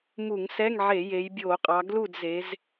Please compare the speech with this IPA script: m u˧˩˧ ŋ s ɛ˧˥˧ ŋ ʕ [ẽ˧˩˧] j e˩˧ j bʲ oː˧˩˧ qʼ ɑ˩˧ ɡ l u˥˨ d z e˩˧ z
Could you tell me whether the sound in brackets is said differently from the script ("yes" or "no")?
yes